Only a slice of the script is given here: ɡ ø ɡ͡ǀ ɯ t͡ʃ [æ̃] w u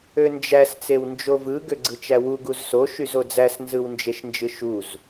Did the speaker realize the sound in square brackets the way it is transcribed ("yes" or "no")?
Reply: no